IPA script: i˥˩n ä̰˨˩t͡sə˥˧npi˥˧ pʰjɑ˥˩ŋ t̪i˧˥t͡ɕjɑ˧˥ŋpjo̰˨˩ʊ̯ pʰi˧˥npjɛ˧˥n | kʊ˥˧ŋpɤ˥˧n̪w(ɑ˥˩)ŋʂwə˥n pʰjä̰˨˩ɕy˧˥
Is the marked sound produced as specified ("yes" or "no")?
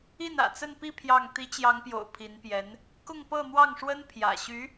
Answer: yes